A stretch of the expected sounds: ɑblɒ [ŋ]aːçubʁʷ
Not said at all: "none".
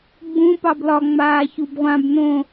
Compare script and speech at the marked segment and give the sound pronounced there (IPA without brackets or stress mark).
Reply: ŋ͡m